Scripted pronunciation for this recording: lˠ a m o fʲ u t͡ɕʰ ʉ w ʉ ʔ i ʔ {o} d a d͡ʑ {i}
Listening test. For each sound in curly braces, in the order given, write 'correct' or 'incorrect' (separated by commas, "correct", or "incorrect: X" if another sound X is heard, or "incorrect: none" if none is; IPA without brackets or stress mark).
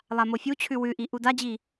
incorrect: u, correct